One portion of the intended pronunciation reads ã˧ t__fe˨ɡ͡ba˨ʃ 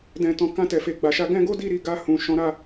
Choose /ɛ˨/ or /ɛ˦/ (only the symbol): ɛ˨